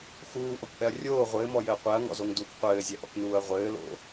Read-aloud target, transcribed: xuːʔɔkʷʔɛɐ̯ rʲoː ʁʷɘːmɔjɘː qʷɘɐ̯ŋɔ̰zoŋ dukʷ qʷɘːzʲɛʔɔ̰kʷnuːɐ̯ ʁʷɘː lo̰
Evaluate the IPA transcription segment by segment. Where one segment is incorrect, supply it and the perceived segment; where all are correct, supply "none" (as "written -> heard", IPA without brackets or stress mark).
ɘ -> ɛ